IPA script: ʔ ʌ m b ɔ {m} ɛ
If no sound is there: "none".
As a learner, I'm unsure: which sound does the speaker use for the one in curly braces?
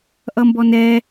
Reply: n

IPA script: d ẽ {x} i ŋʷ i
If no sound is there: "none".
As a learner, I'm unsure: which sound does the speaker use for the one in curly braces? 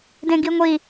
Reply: ɡ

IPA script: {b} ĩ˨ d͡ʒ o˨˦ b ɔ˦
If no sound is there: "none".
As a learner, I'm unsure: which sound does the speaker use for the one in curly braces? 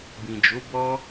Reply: b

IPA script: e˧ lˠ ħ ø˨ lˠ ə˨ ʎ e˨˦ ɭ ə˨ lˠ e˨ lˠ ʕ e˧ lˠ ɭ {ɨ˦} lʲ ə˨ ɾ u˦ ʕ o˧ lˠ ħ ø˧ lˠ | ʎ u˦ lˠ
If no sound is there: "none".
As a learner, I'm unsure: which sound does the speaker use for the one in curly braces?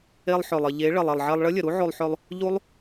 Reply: ə˦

